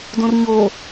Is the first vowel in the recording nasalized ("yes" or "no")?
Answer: yes